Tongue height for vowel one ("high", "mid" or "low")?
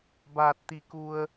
low